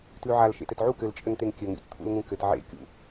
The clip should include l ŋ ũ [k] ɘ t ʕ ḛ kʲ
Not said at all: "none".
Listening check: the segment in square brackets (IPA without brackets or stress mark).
k